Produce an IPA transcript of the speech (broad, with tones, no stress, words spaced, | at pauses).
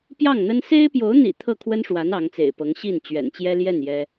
pjɑ˥˩ŋn̪ə˥n se˥ɪ̯pjo˧˥ʊ̯n̪ḭ˨˩ t̪ʰɤ˥˩kʰwə˥nʂwa˧˥n ɑ˧˥ŋt͡sḛ˨˩ɪ̯pɤ˧˥ŋ ɕi˥˩n t͡ɕɥɛ̰˨˩nt͡ɕjɛ˥ljɛ˥˩n jɛ˥